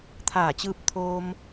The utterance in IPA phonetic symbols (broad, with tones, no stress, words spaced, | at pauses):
t̪ʰaː˧˩t͡ɕɯː˧p̚t̪ʰoː˧m